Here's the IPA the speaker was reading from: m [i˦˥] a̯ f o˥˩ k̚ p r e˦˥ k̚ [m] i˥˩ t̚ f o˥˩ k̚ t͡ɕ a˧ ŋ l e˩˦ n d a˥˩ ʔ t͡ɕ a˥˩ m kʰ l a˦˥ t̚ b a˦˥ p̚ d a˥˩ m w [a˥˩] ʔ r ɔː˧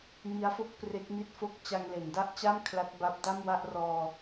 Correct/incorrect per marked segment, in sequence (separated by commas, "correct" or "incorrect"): correct, correct, correct